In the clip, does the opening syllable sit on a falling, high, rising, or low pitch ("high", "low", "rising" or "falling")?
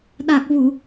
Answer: low